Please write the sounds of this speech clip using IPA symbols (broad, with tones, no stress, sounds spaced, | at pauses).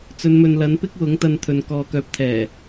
t͡s ɵ˨˧ n m ɵ˨ n l ɐ˨˥ n p ɪ˥ k̚ w ʊ˨˥ ŋ t̪ ɐ˧ n t̪ʰ ɵ˨ n k ɔː˨ k œː˨˥ p̚ t̪ʰ ɛː˨˩